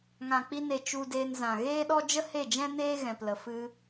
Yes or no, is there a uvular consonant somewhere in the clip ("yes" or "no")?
no